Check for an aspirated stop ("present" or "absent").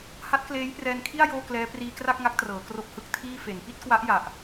present